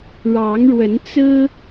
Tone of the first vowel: rising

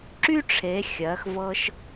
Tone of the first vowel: high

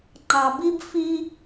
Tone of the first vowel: low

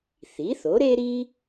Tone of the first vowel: rising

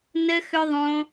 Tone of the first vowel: high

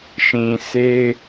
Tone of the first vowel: low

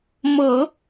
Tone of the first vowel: low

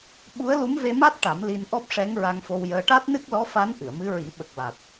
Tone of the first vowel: rising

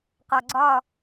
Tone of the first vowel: low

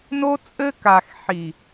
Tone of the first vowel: high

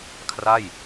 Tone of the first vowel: falling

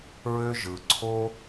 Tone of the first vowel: high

